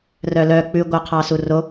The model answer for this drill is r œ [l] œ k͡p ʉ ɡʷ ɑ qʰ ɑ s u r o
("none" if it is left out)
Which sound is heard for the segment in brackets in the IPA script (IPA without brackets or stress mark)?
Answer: l